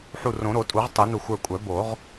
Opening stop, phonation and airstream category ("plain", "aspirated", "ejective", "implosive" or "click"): ejective